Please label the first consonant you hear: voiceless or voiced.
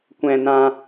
voiceless